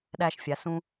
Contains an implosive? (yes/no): yes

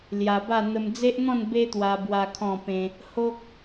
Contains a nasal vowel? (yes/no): yes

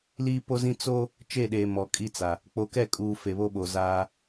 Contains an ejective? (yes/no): yes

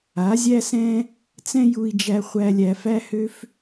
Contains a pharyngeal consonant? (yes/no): no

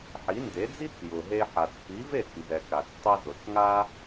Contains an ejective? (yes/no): no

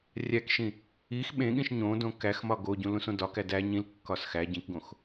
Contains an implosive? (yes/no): yes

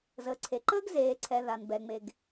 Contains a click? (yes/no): yes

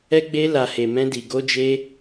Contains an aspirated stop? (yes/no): no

